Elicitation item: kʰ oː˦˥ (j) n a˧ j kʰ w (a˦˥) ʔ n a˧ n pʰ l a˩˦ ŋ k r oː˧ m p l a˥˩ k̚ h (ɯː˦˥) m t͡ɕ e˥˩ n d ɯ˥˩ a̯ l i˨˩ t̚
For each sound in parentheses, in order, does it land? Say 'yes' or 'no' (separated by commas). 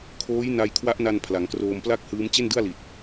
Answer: yes, yes, yes